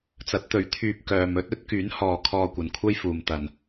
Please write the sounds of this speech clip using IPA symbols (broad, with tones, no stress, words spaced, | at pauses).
t͡sɐ˨˥t̚t̪ɵ˨˥ɥ t̪ʰyː˨p̚ kœː˨mɵ˥t̚ ɵ˨˥t̚ kyː˨˥nhɔː˨ kʰɔː˧kʷɐ˨nkʷʰɐ˥jfuː˨m t̪ɐ˨n